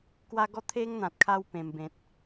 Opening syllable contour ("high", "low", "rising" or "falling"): high